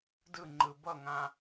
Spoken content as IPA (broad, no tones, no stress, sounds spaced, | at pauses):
d ɯ ŋ͡ǃ ɯ b ʌ ŋ ã